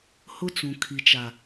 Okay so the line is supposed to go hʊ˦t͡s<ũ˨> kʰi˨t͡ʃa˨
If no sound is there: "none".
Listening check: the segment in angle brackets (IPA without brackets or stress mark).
ũ˨